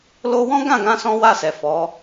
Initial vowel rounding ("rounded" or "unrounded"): rounded